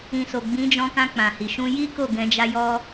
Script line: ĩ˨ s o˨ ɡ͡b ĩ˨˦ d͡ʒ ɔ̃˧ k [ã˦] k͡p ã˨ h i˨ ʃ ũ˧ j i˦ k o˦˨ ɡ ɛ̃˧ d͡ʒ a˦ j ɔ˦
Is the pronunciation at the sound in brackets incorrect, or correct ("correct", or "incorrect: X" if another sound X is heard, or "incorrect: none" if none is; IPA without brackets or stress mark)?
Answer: incorrect: ã˧